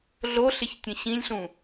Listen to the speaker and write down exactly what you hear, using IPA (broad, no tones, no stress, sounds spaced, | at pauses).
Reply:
ɮ o ɬ ɪ ç tʲ ə̃ ɕ ĩ lʲ ɬ ũ